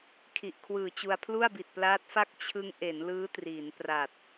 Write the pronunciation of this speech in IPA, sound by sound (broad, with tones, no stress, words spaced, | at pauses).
kʰi˨˩ʔkʰwɯː˨˩t͡ɕu˧a̯ pʰlu˥˩a̯bi˨˩t̚plaː˦˥t̚fa˥˩k̚ t͡ɕʰɯ˦˥ŋ ʔe˩˦nlɯː˦˥triː˩˦n pra˨˩t̚